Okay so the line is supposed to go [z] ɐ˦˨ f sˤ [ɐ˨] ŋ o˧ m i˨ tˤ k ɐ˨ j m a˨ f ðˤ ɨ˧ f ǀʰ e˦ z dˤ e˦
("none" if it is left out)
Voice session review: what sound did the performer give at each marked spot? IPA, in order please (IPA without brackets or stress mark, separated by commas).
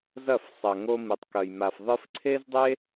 z, ɐ˨